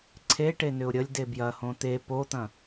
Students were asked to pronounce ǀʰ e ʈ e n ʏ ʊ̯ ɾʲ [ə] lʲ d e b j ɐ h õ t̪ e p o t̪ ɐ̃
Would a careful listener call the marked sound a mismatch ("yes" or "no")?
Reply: no